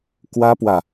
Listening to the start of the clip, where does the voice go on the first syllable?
high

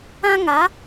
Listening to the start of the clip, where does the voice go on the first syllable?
high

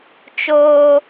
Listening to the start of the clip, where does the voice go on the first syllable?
high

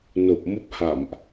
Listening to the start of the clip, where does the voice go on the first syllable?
low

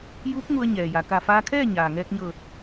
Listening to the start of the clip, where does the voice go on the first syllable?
rising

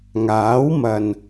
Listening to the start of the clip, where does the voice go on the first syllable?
rising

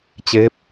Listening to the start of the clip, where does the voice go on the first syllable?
rising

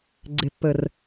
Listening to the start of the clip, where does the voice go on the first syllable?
low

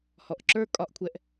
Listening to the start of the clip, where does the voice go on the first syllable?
low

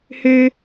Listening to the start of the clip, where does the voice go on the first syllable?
high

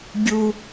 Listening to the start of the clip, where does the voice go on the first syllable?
high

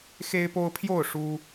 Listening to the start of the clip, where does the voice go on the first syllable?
high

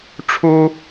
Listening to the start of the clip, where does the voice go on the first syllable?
high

